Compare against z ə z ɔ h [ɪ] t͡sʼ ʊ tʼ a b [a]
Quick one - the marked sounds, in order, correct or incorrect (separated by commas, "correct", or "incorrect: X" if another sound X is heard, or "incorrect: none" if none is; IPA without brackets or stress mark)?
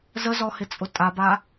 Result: correct, correct